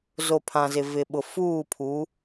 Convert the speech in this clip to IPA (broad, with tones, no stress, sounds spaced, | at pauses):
z o˨ pʰ ã˨ z ɪ˨ v ɪ˨ ɓ ʊ˨ f uː˦˨ pʰ u˨˦